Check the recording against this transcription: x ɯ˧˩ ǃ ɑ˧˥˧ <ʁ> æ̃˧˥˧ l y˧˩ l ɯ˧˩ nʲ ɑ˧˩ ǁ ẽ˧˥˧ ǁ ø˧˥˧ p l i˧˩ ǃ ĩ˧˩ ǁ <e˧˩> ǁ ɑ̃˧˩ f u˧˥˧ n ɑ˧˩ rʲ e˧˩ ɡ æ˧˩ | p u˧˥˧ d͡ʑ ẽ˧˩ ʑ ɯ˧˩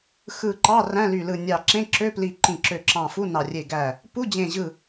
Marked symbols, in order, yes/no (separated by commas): no, no